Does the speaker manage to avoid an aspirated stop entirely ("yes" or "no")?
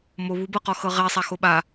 yes